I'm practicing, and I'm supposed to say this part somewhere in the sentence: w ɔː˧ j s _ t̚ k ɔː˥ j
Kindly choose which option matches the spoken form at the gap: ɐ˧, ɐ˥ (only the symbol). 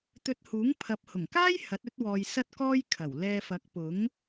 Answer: ɐ˥